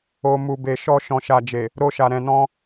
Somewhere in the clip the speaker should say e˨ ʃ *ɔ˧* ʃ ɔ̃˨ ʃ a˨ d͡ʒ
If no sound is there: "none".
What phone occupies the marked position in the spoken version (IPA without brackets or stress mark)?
ɔ˧